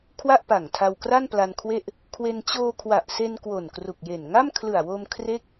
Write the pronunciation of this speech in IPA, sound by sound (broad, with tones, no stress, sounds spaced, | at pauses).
kʰ w a˥˩ ʔ p a˨˩ ŋ tʰ a˧ w k r a˥˩ n p l a˧ n kʰ w e˥˩ ʔ | kʰ w e˧ n t͡ɕ oː˧ kʰ w a˨˩ ʔ s e˧ n k w o˨˩ n k r u˨˩ k̚ j e˨˩ n ŋ a˥˩ m kʰ l ɯ˨˩ a̯ w o˧ m kʰ r e˥˩ k̚